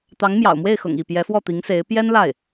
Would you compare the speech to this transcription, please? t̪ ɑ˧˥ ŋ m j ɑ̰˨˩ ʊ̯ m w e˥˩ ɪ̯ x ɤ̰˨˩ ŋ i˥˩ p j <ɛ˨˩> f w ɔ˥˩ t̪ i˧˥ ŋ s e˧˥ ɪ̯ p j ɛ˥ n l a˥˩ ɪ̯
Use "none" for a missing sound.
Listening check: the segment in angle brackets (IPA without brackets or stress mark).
ɛ˧˥